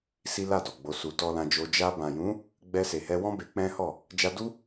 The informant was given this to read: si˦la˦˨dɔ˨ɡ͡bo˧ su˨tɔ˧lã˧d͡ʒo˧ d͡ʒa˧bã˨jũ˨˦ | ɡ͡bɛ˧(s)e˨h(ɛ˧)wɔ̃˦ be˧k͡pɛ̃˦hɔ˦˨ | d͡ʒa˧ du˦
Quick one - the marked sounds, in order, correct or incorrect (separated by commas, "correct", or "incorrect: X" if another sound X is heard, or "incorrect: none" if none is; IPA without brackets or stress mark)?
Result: correct, correct